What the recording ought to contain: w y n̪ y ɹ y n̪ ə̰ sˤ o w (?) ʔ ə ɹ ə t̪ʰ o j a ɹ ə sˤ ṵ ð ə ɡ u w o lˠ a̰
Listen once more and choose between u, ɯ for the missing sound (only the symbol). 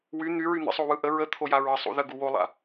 ɯ